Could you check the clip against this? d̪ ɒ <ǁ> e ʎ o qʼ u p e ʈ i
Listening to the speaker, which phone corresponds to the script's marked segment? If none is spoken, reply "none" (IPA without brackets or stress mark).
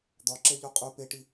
ǁ